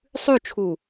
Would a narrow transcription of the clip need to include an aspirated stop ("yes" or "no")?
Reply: yes